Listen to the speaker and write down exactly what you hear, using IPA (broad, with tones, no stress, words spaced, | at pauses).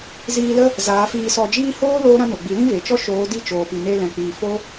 ziː˧lə˦ | zaː˨˦fiː˧sɔ˧ d͡ʒiː˦ hoː˦ loː˦ɾã˦no˨ɡ͡bi˨˦ lĩ˦ve˨t͡ʃɔ˦ ʃoː˨˦di˦˨t͡ʃoː˨pi˨ ne˧lɛ̃˨k͡piː˨ fo˦